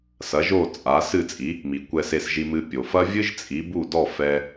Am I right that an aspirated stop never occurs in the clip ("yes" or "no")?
yes